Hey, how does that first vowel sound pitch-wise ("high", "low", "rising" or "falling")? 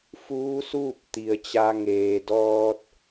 rising